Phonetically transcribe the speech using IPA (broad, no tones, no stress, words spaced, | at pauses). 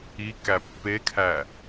i kæpːekʰæ